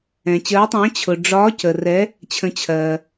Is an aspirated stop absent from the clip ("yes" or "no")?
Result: no